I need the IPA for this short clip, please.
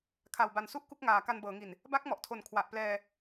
kʰ a˨˩ w b a˨˩ n s u˥˩ ʔ k u˥˩ k̚ ŋ aː˨˩ k a˧ n b ɤː˩˦ ŋ i˨˩ n | b a˦˥ k̚ m ɔ˨˩ ʔ tʰ o˨˩ n kʰ w a˨˩ ʔ p l ɛː˧

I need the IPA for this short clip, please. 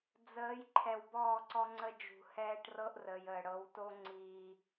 d͡z əː˨˦ j ǃʰ ɛ˨ w b ɔː˦˨ ǀ ɔ˦ ŋ͡ǀ ə˦ d͡ʒ ṳ˨ h ɛː˦ ʈ r ɤ˦ ʔ r əː˨ j əː˨ ɽ ɤ˨˦ w t o˦ ŋ͡ǀ iː˦

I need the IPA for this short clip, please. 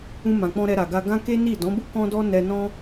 ũ˧ m ã˨ k͡p ɔ̃˧ ɾ ɛ˧ ɾ a˨ ɡ a˧ ɡ ã˦ k e˦ n i˦˨ d ɔ̃˨˦ b u˦ k ɔ̃˦ d ɔ˦ n ɛ˧ n ɔ̃˦

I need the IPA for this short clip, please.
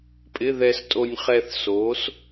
pʼ ɪ˧˥˧ ð ɛ˧ s tʼ o˧ nʲ χ ɛ˧ θ s o˩˥ s

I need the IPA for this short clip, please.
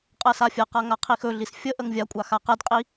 qʼ ɜ s a fʲ ɜ q a ŋ a qʰ i x ɵ ɮ i s fʲ ə ʔ ə ŋ vʲ a kʷʼ a x a q ə d qʼ i

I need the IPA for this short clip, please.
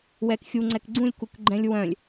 w ɛ k xʲ u ŋ͡ǀ ɛ k ɡ͡ǀ ũ lʲ k u k ɡ͡ǃ ɛ̃ lʲ w œ̃ lʲ

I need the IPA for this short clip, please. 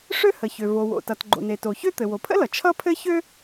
ʂ ø˥ h ə˩ ç ø˩ v o˩ w o̰˩ t ʌ˩ t ɡ͡ǃ o̰˩ n e˩ t o˩ ç ø˥ t̪ ɘ˩ w o˩ pʰ ə̰˥ l ʌ˩ t͡ʃʰ ʌ˥ pʰ ɘ˥ ç ø˥

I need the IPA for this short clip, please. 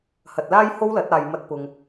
h ɐ˨ t̚ l aː˥ j h o˥ w l ɐ˨˥ t̚ aː˨ j m ɐ˧ t̚ p ʊ˨ ŋ

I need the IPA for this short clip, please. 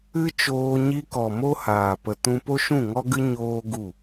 ɨ˦ t͡ʃ oː˧ ɲ i˧ k ɔ˨ m o˦ h aː˨ p ə˧ t ũ˦ p o˦ ʃ ũ˦˨ ŋ ɔ˦ ɡ ɨ˦ ɲ oː˦ ɡ u˦˨

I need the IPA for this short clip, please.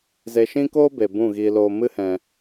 z e˧ ʃ ĩ˦ k oː˦ b e˨ b ũ˦˨ ɣ iː˧ l oː˧ m ɨ˦ h ɛ̃˧

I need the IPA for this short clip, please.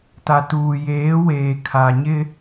t a˨ t uː˨ j eː˨˦ w eː˨ kʰ a˨ ɲ ɪ˦

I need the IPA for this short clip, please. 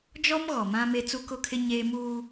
d͡ʒ ɔ˦ m ɣ ɔ˨ m ã˦ m e˦ t͡s u˦ k ʊ˦ kʰ ɪ˦ ɲ eː˦ m uː˦

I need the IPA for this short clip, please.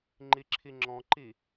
ŋ͡ǃ i ǁʰ i ŋ͡ǁ ɔ̃ ǃ i

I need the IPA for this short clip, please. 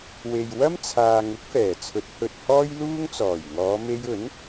w e˨ j w ɐ˥ m t͡sʰ aː˨ ŋ ʊ˨˥ k̚ f ɛː˨˩ t͡sʰ ɵ˨˥ t̚ h ɵ˨ t̚ h ɔː˥ j l uː˥ ŋ t͡s ɔː˨˩ j ŋ ɔː˨˧ m e˧ j ɵ˨˥ n

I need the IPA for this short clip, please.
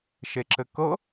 ʃ e ǁ ɘ k ɤ

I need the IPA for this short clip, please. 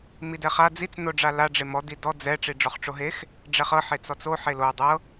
m i d ɛ χ a d͡z i t͡s n o ɖ͡ʐ a l a ɖ͡ʐ e m ɔ d i d ɔ d͡z ɛ ʈ͡ʂ i ɖ͡ʐ ɔ χ ʈ͡ʂ o ɦ e x | ɖ͡ʐ ɛ χ ɤ ħ e t͡s ɔ t͡s o ħ e l o dˤ ɤ

